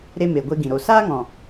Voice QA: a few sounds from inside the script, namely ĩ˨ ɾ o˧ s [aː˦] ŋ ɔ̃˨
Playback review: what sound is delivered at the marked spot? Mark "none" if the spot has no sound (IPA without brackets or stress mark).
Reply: aː˦